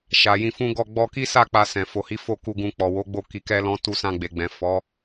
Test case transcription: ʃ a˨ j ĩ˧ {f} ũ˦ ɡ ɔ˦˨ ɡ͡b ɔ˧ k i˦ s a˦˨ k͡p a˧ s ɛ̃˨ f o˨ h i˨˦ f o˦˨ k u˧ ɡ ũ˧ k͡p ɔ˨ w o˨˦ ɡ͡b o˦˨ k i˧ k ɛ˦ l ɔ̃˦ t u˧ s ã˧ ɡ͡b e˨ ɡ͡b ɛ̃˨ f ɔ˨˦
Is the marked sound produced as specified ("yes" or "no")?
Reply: yes